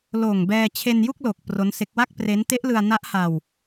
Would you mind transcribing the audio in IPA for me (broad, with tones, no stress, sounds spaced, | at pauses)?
l oː˨˩ ŋ b ɛː˧ t͡ɕʰ e˧ n j u˥˩ k̚ l o˨˩ k̚ p r o˦˥ n s e˦˥ k̚ w a˥˩ k̚ p r e˦˥ n t e˦˥ ʔ l ɯ˧ a̯ n a˦˥ ʔ h a˧ w